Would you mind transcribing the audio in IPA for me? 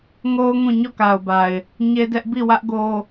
ŋ o˦ ʊ̯ ŋ ũ˦˨ ɲ ɔ˦˨ k a˨ ʊ̯ b a˨ ɪ̯ | ɲ e˦ d ɛ˦ ʔ b i˦˨ w ä˦ ʔ ɡ o˦

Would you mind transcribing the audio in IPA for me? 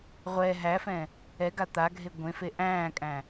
ʁʷ ɛ ɦ æ f ɛ̃ | ɛ ɡ a t̪ a ɡʱ e ɡʷ ẽ f e ʔ æ̃ː kʼ æ̃

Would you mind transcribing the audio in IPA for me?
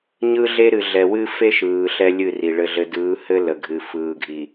ɲ ɯ˦ ɮ e˦ ɾ ɨ˨ ɮ ɛ˨ w ɨ˦ f e˦ ʃ ɯː˨ ɬ ɛ˦ lʲ ɨ˦˨ r i˨ ɭ ɘ˨ ɮ ɘ˨ d ɯː˨˦ h ɘ˦ l ə˨ ɡʱ ɨ˨ f ɯː˨ ɡʱ i˨

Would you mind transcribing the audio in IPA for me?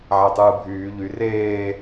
ʕ æ tˤ ɯː bʱ yː ʎ y r eː

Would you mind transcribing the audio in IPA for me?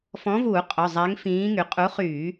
f ɔ̃˨˥ v uː˧˩˧ qʼ œ˩˧˩ zˤ ɛ˨˥ ŋ f ĩː˨˥ ŋ y˩˧ qʼ u˨˥ χ yː˧˩˧

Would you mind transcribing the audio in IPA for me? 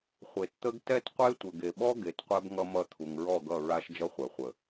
χʷ e˨ t t̪ ə˦ ɡ t ɛ˦ t qʷ e˦ tʷ ə˨ ɡ e˨ ɓ ɔ˦ ɡ e˨˦ t qʷ ɛ˦ b ŋ ʌ˦ m ʌ˦˨ t̪ʰ u˨ ŋ ɹ ɔ˦˨ ɡ ʌ˦˨ ɹ a˦ ʃ d͡ʒ ʌ˦ χʷ ɛ˨ χʷ ə˨

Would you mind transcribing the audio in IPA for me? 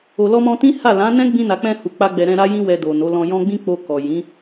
o˨ l ɔ˧ m ɔ̃˧ t ĩ˦ h a˦˨ l ã˨˦ n ɛ̃˦ ɡ͡b ĩ˧ n a˨ k͡p ɛ̃˧ h u˨ k͡p a˧ ɡ͡b ɛ˨ ɾ ɛ̃˧ ɾ a˦ j ĩ˦ w ɛ˧ d o˨ n o˨˦ l ɔ̃˧ j ɔ̃˦ ɡ͡b ĩ˦ k͡p o˧ k ɔ˨ j ĩ˨˦

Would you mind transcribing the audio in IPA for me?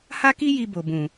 h a˦ k i˦ j i˧ b o˨ b ũ˨

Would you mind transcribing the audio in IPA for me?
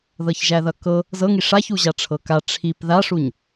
ð ɤ ç ʒ æ ð ʌ k ɤ | z ɤ ŋ i ʂ a ç u ʑ a ʈ͡ʂʰ ɤ k a ʈ͡ʂʰ i p ð a ʂ u ɲ

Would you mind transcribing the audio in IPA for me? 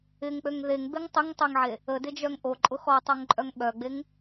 ɪ ŋ k͡p ø ŋ ð e ŋ b e ŋ tˤ ɪ ŋ tˤ e ŋ ʕ e | ə d ɪ d͡ʒ œ ŋ ʔ o ǃʼ ʊ x ɔ tˤ o ŋ ǃʼ œ ŋ ɓ œ ɡ͡b e ŋ

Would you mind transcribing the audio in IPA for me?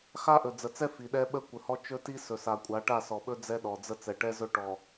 x a˦ ʔ ɵ˨ d͡z ə˨ t͡s ɛ˦ f i˨ ɗ ɛ˦ ɓ ə˦ kʷ ə˨ h ɔ˦ t͡ʃ ɵ˦ t i˦ s ɵ˨ s a˨ kʷʼ a˨˦ ʈ a˦˨ s ɔ˨ ɓ ɵ˦ d͡z ɛ˦ ɗ ɔ˨ d͡z ə˦ t͡s ɛ˨ ʈ ɛ˦ z ɵ˦ ʈ ɔ˨

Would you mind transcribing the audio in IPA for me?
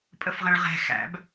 pʼ ə f ʁ ɛ̃ ɭ ʁ ɛ̤ x æ̰ b

